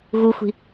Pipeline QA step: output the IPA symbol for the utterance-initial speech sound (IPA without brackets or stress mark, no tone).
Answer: ɣ